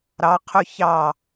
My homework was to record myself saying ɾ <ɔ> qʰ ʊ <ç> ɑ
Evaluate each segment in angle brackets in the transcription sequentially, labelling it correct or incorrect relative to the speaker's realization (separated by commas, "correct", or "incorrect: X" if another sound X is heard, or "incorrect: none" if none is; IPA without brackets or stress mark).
incorrect: ɑ, correct